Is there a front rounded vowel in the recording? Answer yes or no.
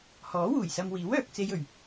yes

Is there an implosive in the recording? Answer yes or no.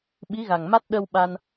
yes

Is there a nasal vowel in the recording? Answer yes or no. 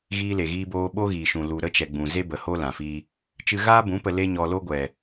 yes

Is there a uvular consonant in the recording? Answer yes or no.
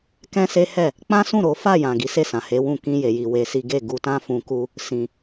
no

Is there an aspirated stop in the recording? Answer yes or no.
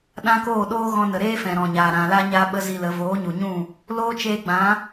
no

